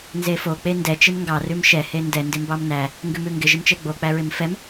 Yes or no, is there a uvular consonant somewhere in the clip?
no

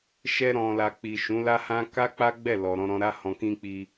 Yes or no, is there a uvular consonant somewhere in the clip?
no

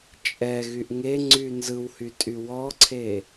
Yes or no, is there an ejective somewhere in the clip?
yes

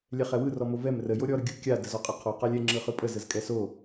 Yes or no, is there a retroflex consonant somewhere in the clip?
no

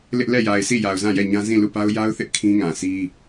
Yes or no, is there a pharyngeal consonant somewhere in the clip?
no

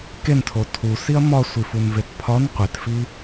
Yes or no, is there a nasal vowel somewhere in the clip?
no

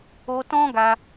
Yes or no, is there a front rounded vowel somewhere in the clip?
no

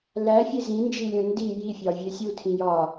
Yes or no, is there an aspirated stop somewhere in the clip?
yes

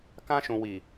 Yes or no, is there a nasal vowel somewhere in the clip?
yes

